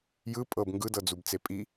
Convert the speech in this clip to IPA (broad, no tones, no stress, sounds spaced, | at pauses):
j ɯ pʼ ɤ b ŋ ɡ ɯ d ɤ d͡z u b t͡s e pʼ i